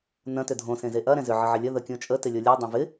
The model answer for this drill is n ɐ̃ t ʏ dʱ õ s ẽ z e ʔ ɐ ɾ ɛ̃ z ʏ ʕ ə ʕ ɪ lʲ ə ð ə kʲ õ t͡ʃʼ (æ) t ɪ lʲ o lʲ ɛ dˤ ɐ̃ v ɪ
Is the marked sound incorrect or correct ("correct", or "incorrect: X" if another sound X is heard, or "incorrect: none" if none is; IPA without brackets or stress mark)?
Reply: incorrect: ə